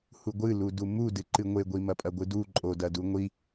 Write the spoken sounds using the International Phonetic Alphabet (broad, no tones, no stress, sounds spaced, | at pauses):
h u ɡʷ ɨ l u d u m u d ɨ ǃ ɨ ŋʷ e ɡʷ i m ɐ pʼ ɐ ɡʷ ɨ d u ǃʼ o d ɐ d u ŋʷ i